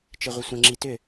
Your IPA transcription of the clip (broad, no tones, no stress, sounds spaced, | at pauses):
t͡ʃ ɪ ʁʷ ɪ sʷ ə̃ ŋ͡ǁ i t ʏ